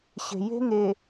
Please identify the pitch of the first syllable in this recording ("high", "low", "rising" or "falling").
low